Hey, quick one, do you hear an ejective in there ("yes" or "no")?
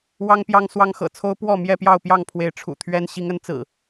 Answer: no